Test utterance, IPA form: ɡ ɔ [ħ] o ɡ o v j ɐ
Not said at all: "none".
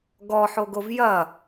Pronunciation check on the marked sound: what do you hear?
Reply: ħ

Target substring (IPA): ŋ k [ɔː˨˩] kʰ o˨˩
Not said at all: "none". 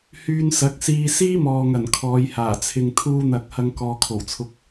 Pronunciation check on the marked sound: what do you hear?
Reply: ɔː˨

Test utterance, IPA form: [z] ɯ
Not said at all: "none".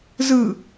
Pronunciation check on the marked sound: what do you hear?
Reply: z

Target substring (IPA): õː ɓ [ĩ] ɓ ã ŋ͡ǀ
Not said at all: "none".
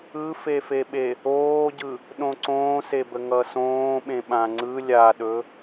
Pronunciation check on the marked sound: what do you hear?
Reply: ẽ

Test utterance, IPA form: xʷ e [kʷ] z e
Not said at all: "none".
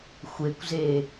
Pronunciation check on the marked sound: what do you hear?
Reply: kʷ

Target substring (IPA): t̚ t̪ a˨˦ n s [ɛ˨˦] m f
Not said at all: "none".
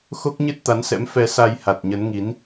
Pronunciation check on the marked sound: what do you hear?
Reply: ɛ̰˧˥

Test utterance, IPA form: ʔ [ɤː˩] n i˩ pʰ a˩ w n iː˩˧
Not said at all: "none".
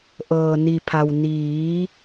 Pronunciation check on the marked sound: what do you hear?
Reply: ɤː˩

